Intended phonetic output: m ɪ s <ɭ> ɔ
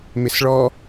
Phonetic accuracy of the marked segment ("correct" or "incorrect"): correct